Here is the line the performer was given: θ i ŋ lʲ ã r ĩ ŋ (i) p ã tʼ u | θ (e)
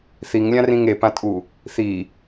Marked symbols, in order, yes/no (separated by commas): no, no